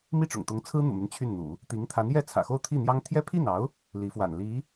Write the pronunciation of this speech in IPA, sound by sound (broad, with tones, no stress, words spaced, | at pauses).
mi˥˩ʈ͡ʂʊ̰˨˩ŋt̪ʊ˧˥ŋ t͡sʰɹ̩˥n̪ṵ˨˩my˦n t͡ɕʰy˥˩nn̪ṵ˨˩˦ | t̪i˧˥ŋt̪ʰa˧˥njɛ˥˩ t͡sʰä̰˨˩xo˥˧ʊ̯t̪ʰi˥˩n̪jɑ˥ŋ t̪ʰjɛ˥pʰi˥˩nɑ˧˥ʊ̯ | li˧˥fwa̰˨˩nli˧˥